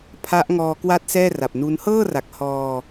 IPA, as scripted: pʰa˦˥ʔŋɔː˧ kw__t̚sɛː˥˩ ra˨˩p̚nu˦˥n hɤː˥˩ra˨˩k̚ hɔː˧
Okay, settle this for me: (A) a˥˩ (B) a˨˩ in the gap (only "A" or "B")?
A